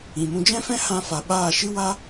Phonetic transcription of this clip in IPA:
ĩ˨mũ˧d͡ʒɛ̃˦fɛ̃˦ hã˧fa˨ ɓaː˦˨ ʃɨ˦wa˦

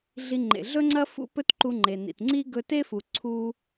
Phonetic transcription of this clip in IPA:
ɮi˧ŋ͡ǃḛ˩ ɮɵ˥ŋ͡ǀɐ˥ fṵ˥pɵ˥t ǃu˧ŋ͡ǃe˩nḭ˩tŋ͡ǀi˥ ɡɵ˧te˥fu˩ ǀʰu˧

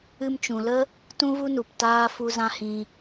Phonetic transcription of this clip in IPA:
ɨ˧mt͡ʃũ˨lə˦ | tũ˦vu˦nu˨p taː˦fu˦zã˦hĩ˧

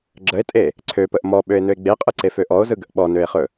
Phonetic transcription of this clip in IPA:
ɡ͡ǁəe̯tʼe | ǀʰøpəʔ mɔɓøe̯nøe̯ ɡ͡beqʼɯǀefø ʔɔo̯zɯɡəʔ ɓɔnøe̯χɵ

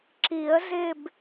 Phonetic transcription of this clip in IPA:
ǁi˨˩˦ə̯zɪ˦˨b

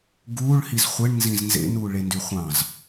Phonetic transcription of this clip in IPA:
ɡuːɭhiz χʷeɳnzĩz nzḛnuː ɭendyχʷɑ̃z

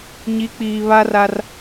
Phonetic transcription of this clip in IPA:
ɲi˨˦k͡piː˨βa˦ra˦r

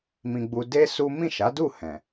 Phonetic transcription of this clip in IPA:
mĩ˧ ɡ͡bu˧de˦su˦ mĩ˦˨ʃa˨˦du˦˨ hɛ̃˨

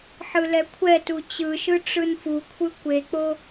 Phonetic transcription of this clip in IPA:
ħɯlɛkʷʰɛtu t͡ɕɯʃɯ ʈ͡ʂɯnfukʷʰɯ kʷek͡po

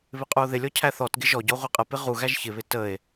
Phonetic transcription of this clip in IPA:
βɪqʼuo̯ðɪlʲɔ cʰæθɔtɡɪ ʒɔɟɔ ʁʷiqʼəpɪ ʁuɣæʒ çɪβɪ təe̯

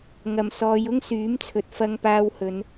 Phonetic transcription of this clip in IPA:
ŋɐ˨˩msɔː˨˧j ʊ˥ŋsyː˨˥mt͡sʰɵ˨t̚ fɐ˧ŋpaː˧w hɵ˨˧n

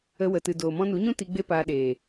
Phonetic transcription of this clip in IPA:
ə˧wə˨tɨ˨ doː˨mɔ̃˦ nu˨˦ɲũ˦ ti˧ ɡ͡be˦paː˧ɗeː˨

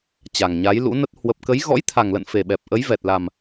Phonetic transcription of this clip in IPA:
t͡ɕa˨˩ŋɲa˨˦jlṵ˧˥nə˦˥t̚ hwə˨˩p̚kə˨˦j ɣɔ̰˧˥jt̪ʰa˨˩ŋlə̰˧˨n fe˨˩ɓɛ˨˩p̚ ʔə˨˦j vɛ˨˩t̚la˨˩m

